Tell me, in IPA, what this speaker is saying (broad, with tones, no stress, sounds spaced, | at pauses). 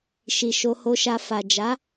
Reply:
ʃ i˨ ʃ o˧ h o˧ ʃ a˧ f a˨ d͡ʒ a˨˦